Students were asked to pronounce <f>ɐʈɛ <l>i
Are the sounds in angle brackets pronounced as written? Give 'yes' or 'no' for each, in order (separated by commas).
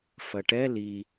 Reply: yes, yes